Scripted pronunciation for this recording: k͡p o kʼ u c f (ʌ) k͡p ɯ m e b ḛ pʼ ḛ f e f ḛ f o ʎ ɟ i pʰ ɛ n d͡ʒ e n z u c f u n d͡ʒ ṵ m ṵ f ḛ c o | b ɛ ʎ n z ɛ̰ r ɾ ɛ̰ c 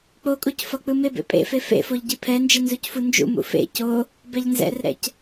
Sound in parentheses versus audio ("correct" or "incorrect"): correct